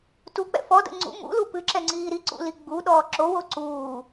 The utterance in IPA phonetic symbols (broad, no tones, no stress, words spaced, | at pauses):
tuk͡pɛ̰ fɔdə̰ ŋ͡ǀṵ mṵlu pɨǁɛŋ͡ǀiː ɾiǀṵli ɡ͡buɗɔː ǁowo ǀuː